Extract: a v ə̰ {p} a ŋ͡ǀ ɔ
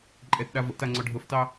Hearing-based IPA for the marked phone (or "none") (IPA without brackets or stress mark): t